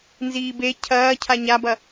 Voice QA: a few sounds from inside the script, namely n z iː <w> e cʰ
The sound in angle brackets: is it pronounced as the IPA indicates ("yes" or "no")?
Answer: no